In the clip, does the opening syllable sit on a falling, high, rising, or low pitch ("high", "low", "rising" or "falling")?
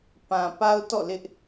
low